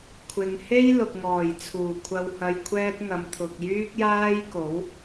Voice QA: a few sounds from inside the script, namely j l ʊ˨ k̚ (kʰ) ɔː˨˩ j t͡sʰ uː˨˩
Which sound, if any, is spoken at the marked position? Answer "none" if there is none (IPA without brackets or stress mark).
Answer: ŋ